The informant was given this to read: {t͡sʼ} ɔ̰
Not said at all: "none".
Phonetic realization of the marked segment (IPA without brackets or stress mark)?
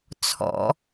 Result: t͡sʰ